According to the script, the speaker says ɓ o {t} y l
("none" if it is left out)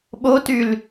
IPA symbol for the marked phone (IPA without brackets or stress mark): t